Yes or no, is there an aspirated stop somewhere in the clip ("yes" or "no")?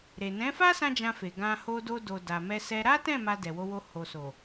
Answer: no